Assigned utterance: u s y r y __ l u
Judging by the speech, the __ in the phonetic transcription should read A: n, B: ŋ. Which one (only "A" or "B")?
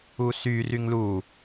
B